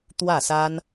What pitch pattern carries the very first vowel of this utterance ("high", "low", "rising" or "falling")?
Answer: falling